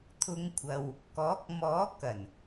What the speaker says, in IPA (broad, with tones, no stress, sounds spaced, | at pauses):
t̪ʰ ʊ˨˧ ŋ kʷʰ ɐ˨ w | k ɔː˨˥ k̚ m ɔː˨˥ k ɐ˨˩ n